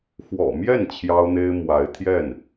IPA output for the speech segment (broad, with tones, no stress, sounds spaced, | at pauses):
x w ɔ̰˨˩ m j ɛ˥˩ n t͡ɕʰ j ɑ˥ ʊ̯ n̪ e˥ ɪ̯ m w a˧˥ ɪ̯ t̪ʰ j ɛ˥˩ n